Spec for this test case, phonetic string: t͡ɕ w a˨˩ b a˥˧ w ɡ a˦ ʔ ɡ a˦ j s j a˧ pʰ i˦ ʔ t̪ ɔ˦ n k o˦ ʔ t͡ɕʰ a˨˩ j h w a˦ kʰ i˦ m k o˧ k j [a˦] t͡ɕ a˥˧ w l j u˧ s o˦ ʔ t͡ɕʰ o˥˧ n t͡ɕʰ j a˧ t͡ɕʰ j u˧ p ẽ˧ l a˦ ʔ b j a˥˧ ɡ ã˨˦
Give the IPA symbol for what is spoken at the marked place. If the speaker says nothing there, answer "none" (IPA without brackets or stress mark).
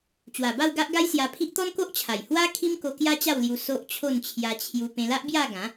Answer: a˦